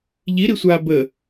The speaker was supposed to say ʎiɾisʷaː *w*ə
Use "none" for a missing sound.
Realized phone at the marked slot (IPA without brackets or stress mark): b